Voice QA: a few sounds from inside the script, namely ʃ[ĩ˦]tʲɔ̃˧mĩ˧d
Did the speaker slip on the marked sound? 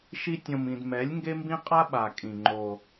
yes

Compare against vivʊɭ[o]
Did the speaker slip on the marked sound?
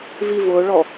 yes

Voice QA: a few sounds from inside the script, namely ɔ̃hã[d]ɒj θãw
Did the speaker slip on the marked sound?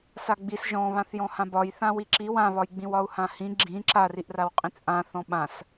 yes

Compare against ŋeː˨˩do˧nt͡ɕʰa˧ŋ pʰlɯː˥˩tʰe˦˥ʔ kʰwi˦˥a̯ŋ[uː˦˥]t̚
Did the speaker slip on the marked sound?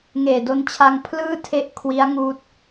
no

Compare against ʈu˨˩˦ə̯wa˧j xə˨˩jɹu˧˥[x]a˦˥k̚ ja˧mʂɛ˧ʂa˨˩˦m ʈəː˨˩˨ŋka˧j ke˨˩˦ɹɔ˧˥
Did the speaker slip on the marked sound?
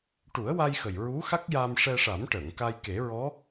no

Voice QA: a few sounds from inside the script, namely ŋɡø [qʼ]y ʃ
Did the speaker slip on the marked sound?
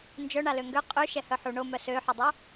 no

